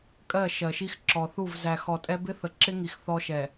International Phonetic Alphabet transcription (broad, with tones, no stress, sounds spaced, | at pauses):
kʼ ɜ˦˨ ʃ ɜ˨ ʃ i˦ x ǁ ɔ˨ θ u˦˨ v z æ˨ x ɔ˨ tʼ ɛ˦ b ɪ˦ θ ə˨ ǁ ɪ˦ ŋ i˨ x θ ɔ˦ ʃ ɛ˨